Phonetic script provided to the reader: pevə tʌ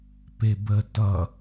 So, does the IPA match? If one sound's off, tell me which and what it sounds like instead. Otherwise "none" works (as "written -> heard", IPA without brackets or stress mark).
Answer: v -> b